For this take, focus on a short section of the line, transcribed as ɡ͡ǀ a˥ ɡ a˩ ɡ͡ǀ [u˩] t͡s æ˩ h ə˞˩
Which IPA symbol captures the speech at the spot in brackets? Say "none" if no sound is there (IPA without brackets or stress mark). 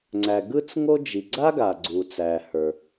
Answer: u˩